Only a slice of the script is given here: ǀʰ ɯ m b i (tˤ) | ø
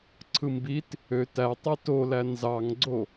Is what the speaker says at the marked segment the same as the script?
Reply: no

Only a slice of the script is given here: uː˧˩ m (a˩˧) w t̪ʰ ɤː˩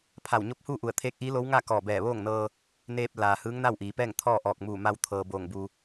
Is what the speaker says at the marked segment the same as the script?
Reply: no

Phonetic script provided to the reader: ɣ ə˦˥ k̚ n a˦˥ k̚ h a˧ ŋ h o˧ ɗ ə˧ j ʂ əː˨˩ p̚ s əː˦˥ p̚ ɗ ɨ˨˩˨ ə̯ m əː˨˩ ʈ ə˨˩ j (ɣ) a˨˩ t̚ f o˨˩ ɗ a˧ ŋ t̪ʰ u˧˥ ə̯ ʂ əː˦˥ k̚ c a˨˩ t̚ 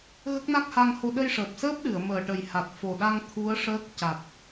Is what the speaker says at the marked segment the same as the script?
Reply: no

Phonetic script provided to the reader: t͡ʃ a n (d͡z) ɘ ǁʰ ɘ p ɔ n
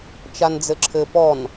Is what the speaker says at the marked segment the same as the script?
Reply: yes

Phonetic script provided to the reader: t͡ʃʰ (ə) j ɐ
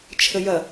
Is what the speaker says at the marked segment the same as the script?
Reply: yes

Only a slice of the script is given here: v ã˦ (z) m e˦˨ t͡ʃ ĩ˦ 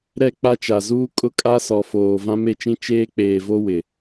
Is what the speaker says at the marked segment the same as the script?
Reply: no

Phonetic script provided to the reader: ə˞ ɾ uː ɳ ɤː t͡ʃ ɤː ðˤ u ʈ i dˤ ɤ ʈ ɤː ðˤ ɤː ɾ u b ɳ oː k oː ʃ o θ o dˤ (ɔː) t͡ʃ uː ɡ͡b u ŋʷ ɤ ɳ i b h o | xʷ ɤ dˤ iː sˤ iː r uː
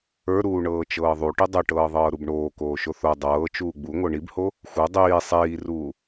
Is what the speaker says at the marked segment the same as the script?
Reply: no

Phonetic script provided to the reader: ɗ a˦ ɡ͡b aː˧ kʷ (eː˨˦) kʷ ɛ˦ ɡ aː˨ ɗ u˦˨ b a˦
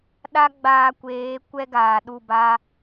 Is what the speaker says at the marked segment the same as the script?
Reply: yes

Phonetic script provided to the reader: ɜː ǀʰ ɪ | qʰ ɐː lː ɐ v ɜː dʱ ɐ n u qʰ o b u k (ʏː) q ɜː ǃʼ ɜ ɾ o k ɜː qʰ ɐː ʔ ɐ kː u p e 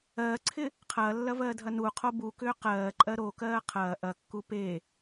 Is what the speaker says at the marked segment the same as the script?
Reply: yes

